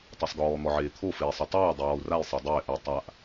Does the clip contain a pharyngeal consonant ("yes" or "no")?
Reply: yes